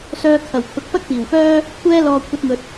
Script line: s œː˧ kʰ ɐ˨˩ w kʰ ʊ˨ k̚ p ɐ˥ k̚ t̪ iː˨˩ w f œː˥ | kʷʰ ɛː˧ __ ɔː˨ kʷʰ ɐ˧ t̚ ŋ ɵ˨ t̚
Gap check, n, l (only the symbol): l